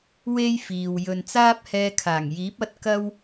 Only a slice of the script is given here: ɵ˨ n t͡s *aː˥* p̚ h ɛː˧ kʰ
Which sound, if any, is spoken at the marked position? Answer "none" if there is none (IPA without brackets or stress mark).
aː˥